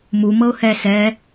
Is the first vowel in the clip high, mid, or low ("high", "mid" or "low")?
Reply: high